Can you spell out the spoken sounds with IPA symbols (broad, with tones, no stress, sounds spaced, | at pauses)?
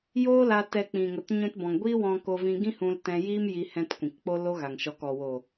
j oː˦ l a˧ t ɛ˧ k͡p ĩ˨ ŋ ə˨ t ɲ ũ˧ t b ɔ̃˨ ŋ ɡʷ iː˦ w ɔ̃˧ k o˧ v ĩ˧ ɡ ĩ˦ h ũ˧ l t ɛ̃˧ j iː˦ m j i˧ h ɛ̃˧ t kʷ ĩ˨ k k͡p o˦ l o˦ ɣ a˨ ŋ ʃ ɔ˨˦ k ɔ˨ w oː˨